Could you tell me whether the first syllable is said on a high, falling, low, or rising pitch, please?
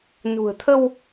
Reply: low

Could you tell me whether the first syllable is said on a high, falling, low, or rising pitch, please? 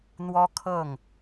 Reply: high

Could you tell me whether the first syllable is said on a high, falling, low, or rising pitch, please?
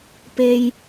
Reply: low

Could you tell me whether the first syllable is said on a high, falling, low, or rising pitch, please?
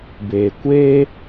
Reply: low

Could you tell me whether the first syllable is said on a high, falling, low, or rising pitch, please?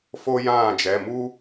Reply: high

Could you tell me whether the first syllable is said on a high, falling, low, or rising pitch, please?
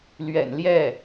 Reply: low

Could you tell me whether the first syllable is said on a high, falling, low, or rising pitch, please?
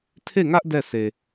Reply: falling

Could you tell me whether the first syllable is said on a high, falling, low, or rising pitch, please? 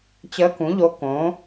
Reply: rising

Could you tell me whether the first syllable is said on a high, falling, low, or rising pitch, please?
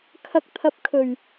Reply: rising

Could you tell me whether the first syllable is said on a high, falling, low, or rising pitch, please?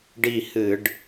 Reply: falling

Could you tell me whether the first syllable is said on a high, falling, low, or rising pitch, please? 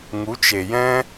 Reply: rising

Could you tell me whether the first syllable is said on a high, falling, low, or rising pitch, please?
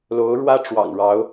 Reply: rising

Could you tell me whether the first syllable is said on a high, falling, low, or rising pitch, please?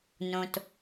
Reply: low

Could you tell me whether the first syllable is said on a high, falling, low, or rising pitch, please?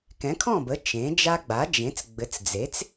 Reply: rising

